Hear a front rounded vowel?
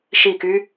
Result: yes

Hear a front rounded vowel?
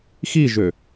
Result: yes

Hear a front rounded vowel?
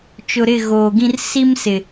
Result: no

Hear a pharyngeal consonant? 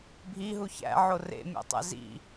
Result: yes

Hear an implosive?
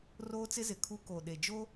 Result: yes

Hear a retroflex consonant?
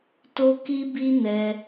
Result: no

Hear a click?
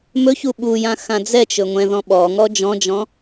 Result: no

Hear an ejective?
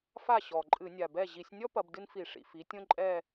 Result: yes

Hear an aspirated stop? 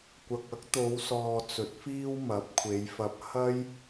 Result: yes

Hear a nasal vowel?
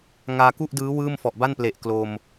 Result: no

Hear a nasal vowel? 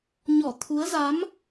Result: no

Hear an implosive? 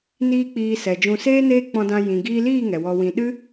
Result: yes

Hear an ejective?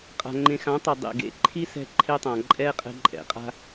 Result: yes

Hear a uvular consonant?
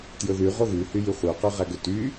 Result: yes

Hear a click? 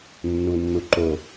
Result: yes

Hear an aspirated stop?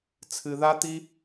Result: yes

